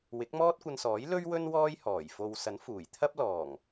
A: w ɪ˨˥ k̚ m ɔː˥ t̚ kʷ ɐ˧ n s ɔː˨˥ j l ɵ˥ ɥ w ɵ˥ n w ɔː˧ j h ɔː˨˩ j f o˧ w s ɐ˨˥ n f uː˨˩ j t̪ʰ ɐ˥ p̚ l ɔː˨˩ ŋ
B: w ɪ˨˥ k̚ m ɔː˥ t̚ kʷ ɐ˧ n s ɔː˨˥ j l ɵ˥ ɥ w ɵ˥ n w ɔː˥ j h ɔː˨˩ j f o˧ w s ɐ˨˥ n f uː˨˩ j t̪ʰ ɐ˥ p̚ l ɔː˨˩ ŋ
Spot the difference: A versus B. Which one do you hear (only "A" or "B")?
B